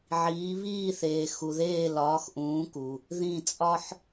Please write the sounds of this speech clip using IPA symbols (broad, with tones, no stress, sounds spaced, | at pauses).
ʕ iː˨˥ β iː˦˨ θ eː˨ x u˨ ð eː˦˨ l ɒː˨˥ x ʔ ũː˨˥ k u˨ | ð ĩ˦˨ t͡sʼ ɒ˥ ħ